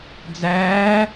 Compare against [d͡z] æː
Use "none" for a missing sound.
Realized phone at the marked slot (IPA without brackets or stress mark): d͡z